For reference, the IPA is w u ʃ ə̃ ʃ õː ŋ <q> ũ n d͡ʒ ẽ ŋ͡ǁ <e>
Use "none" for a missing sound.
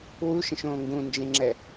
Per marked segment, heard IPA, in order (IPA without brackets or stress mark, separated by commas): ɡ, ɛ